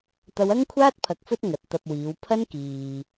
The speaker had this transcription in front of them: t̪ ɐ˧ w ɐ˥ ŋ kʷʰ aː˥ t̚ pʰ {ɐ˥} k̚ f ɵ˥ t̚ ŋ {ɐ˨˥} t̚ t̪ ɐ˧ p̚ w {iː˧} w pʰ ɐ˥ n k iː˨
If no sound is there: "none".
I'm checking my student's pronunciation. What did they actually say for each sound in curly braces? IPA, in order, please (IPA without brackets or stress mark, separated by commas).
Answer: ɐ˧, ɐ˨˥, iː˨˧